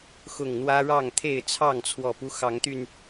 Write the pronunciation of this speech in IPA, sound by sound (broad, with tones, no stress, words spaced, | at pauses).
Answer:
xʊ˨˩ŋ n̪wä˦ɻɑ˥˨ŋt̪ʰe˥˨ɪ̯ t͡sʰɑ˥˨ŋt͡sʰwɔ˨˩pu˦ xɑ˨˦ŋt̪y˧n